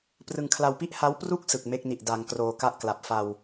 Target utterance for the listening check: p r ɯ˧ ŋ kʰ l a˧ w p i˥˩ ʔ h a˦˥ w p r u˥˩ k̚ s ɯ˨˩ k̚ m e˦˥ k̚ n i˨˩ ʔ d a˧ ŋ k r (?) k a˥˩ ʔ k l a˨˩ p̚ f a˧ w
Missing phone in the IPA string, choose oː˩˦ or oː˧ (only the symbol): oː˧